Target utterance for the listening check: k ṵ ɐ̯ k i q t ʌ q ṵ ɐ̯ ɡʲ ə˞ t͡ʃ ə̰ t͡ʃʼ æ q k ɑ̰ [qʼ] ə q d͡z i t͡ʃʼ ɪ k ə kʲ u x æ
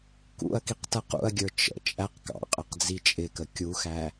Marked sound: correct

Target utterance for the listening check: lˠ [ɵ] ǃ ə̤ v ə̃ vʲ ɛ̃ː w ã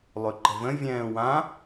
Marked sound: correct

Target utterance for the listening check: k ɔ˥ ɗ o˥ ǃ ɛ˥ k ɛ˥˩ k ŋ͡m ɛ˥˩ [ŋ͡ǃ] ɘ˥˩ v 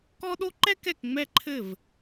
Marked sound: incorrect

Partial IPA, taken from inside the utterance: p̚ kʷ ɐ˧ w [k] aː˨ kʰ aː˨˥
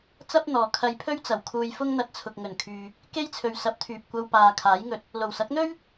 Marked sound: incorrect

